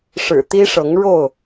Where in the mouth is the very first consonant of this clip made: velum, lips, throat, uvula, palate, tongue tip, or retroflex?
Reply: retroflex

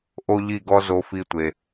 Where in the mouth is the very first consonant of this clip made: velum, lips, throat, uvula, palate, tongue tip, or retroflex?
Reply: throat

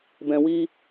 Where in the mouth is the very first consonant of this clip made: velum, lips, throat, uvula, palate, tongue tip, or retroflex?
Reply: lips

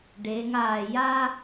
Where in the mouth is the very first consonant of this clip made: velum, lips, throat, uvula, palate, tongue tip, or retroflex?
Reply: retroflex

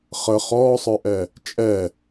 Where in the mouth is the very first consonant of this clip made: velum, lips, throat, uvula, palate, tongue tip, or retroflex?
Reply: uvula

